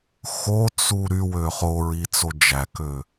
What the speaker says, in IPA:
xot͡su ɾywø χoɹit͡so d͡ʒækø

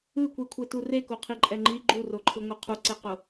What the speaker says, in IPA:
ɯkʷikʷʰetu rekoqʰiǃʼɛ ŋ͡ǃi ɡ͡ǃuroǃʰɯŋʷɤ qʰuǀeqo

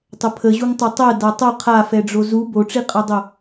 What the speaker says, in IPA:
tˤəpʰəʑuŋ tˤʌtˤɜ datˤʌ qʰafɛɖ͡ʐo zu boʈ͡ʂiqʼadˤo

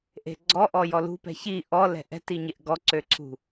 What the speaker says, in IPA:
ʔe̤ɡ͡ǀɔʔɔ jɔlṳpɛ̤ çi ʔɔlɛ̤ ʔɛ̤tiɲeʔ ɡɔǀøǀʰṳ

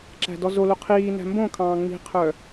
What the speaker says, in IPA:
ǁæ̤dɔzolo qʰiː næ̤mbõkʰɑ̃ː ŋ͡mi̤qʰœ

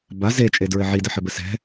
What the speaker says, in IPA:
ba zet͡ʃʼedɹɘ ʕidɘħɘbɘ sɛ̤

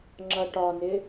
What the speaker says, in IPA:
ŋ͡ǁʌʈɒnɪ

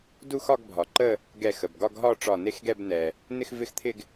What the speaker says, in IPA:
du˥˧xɒ˥˧ɡbʱɒ˩ǃə˥˧ | ɡɛ˧˩xə˩bɡɒ˥˧ɡɦɒ˥˧ ʈ͡ʂɒ˧˩ne˥˧xɡɛ˥˧b nɛ˩ | nɪ˥˧xvɪ˥˧xt̪ʰɪ˥˧ɡ

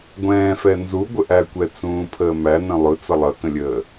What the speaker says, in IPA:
ɡʷɛ̃ːfɛ nzuɡʷəʔækʷɛ t͡sũːpʰəːmæ nə̃lˠʊ t͡sʌlˠʌkə̃lʲəː

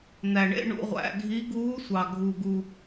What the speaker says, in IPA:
n̪æ˨ɳḛ˧˥˧ ɳṵ˧˥˧ʁʷæ̰˧˥˧ ɡʱi˧˥ ɡuː˧˥sʷɑ˨ ɡʱu˨ ɡu˨

